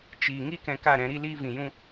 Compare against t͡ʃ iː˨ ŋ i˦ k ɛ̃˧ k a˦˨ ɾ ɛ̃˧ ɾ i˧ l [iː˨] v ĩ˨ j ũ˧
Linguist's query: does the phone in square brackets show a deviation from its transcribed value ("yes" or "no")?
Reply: yes